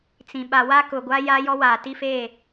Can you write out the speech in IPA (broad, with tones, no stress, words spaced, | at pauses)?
t͡sĩ˨ ɓa˨wa˦kʊ˨ɡʷa˦ ja˦jɔ˦waː˨ ti˦feː˦˨